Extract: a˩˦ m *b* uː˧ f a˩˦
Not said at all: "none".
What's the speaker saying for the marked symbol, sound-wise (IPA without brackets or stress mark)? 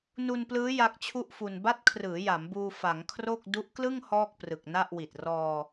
b